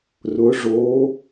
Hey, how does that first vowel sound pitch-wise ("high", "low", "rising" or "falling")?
rising